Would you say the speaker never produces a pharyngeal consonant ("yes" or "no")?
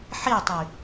no